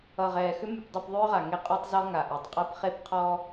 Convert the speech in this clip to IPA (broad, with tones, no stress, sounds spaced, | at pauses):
ʌ˨ ʁ ɛː˨ x ʏ˦ m y˨ p dˤ ʌ˦˨ p ðˤ ʏː˦ ʁ a˨ ŋ e˦ qʼ ɔ˦ tˤ z ɔ˦ ŋ a˨ ʔ ɤ˨ tˤ qʼ ɤ˦ p χ e˦ p qʰ ɔ˦